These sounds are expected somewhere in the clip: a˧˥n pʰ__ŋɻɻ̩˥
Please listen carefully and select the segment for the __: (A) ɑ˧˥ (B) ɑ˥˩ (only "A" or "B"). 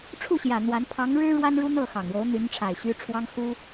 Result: A